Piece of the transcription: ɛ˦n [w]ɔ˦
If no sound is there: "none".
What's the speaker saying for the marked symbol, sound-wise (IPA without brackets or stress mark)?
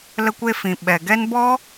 b